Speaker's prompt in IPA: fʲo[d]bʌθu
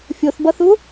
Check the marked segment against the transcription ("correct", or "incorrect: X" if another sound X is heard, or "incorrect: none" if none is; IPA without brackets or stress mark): incorrect: θ